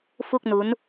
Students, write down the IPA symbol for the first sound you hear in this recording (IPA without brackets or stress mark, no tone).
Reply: f